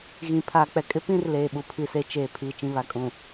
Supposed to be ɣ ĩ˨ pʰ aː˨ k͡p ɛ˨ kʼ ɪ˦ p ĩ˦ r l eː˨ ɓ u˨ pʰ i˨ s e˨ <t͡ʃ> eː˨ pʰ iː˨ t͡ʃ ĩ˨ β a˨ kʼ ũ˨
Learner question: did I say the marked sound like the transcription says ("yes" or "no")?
yes